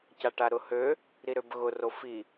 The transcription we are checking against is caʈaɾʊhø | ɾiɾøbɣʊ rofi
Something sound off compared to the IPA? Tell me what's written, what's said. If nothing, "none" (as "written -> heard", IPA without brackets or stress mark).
none